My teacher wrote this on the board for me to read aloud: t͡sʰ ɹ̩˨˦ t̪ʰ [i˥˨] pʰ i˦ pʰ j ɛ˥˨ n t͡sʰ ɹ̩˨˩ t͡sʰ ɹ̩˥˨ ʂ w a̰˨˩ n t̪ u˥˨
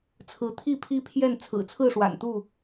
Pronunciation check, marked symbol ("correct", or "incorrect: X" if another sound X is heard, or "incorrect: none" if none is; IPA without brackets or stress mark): correct